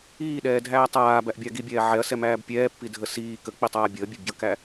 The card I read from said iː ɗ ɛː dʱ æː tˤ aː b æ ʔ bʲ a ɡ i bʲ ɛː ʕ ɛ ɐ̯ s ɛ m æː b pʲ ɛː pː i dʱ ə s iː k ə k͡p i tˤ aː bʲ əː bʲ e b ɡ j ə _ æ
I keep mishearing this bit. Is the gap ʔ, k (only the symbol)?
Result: k